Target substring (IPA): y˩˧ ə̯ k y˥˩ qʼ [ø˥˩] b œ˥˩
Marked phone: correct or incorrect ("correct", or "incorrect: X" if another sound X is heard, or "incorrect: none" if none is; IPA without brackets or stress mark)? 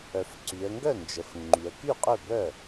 correct